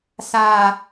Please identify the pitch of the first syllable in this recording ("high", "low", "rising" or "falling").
high